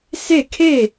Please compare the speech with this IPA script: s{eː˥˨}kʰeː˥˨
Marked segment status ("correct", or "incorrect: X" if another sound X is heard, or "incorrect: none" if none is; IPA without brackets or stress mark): incorrect: e˥˨